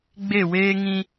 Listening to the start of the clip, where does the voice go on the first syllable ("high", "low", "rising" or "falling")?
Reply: falling